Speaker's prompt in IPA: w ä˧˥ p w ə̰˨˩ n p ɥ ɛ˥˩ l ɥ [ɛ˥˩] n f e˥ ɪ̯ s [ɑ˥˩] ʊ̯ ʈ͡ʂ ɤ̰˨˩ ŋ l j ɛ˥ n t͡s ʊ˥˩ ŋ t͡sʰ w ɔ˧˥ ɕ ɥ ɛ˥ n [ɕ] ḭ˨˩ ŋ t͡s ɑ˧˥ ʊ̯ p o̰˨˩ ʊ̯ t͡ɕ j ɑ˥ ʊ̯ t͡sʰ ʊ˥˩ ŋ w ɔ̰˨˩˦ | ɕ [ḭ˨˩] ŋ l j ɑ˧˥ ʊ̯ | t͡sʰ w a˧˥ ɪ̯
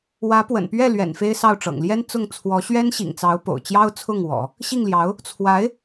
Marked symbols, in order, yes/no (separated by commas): no, yes, yes, no